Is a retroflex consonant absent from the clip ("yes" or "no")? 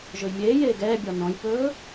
yes